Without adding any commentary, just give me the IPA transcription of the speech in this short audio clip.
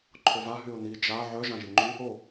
ǃʰ o v a ɦ y ʊ̯ n̪ i d͡ʒ a ʕ œ ʒ ã ʒ i ŋ͡ǃ y | o

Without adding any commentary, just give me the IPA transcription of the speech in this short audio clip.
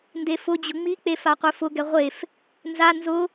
n d e f ʊ d͡ʑ ʊ ŋ͡m i k͡p e f a qʷ e f ʊ ɡ ɛ ʁʷ e f | n z a n z ʊ

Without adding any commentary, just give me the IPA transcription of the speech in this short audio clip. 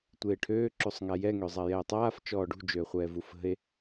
tʷ eː ʈʰ øː ǁ u sˤ ŋ a j ɛ ŋ ø zˤ a j ɛː tˤ aː f t͡ʃ ɔː ɖ ṳ d͡ʒ øː χʷ ɛː v u f ə̤ e̯

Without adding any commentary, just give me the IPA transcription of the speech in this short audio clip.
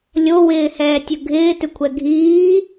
lʲ o w ɪː h ɛː tʲ ɵ ɡʱ ɪː t ʏ kʷʰ ɛ ɡʱ iː

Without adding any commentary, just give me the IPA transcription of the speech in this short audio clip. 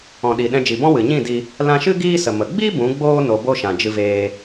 ɔ̃˨ ɗ i˨ ɗ ɛ̃˧ d͡ʒ i˨ b ɔ̃˦ w ɨ˨ ɲ ĩ˦˨ d i˧ | l ã˧ ʃ ɨ˦ ɡ iː˦ s ə˨ m ə˨ ɡ͡b i˦ b ũ˨˦ ɡ͡b oː˦ n o˧ b o˦ ʃ ã˨ d͡ʒ ɨ˧ v eː˧

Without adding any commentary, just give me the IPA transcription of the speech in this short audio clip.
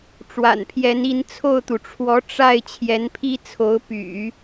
ʈ͡ʂ w a̰˨˩ n pʰ j ɛ˧˥ n i˧˥ n t͡sʰ o˥˩ ʊ̯ t̪ u˩ ʈ͡ʂʰ w ɔ˧˥ ʈ͡ʂ a˥˩ ɪ̯ t͡ɕʰ j ɛ˧˥ n pʰ i˥ t͡sʰ o˧˥ ʊ̯ p y̰˨˩˦

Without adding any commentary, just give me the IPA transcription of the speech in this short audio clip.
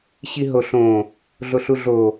ɕ i ɦ o ɬ õ | ɮ o ɬ u ɮ o

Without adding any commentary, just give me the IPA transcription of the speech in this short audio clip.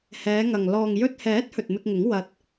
h ɛː˨˧ ŋ ɐ˨ ŋ l ɔː˨ ŋ j ɵ˧ t̚ h ɛː˨˥ t̚ h ɵ˨ t̚ m ɪ˧ k̚ ŋ ɪ˨˥ ŋ w ɐ˧ t̚

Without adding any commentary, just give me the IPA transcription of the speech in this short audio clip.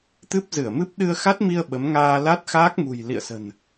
t̪ ɨ˦˥ p̚ z ɨ˧˩ ə̯ m ɨ˦˥ p̚ ɗ ɨ˧ ə̯ x a˦˥ t̚ m i˧ ə̯ ɓ ə˨˦ m ŋ aː˧ l a˦˥ t̚ x aː˦˥ k̚ m ṳ˨˩ j l ḭ˧˨ ə̯ s ə̤˨˩ n

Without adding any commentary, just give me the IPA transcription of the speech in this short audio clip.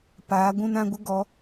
p aː˨˦ ɡʷ ũ˧ n ã˧ ɡʷ ə˦ ɡ ɔ˨˦

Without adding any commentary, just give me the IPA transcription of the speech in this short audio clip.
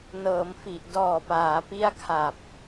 n ɤː˩˦ m f i˨˩ ʔ d ɔː˨˩ p aː˩˦ p i˦˥ a̯ kʰ a˨˩ p̚

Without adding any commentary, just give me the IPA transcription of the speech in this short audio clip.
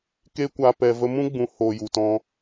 k eː˦ kʷ aː˧ p ɛ˨ v ə˧ m ũ˦ ɡ͡b ũ˨˦ h oː˨ j u˨ t ɔ̃˧

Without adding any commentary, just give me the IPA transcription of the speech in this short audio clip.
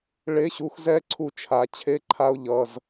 ɭ e˧˥˧ ɕ u˨˥ x z ɛ˦˥ ǀʰ u˦˨ t͡ʃʰ a˨˥ t͡ɕʰ e˦˥ ǃʰ a˦˥ ʊ̯ ʎ ʌ˧˥˧ z

